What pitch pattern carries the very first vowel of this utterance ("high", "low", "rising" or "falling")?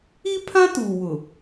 high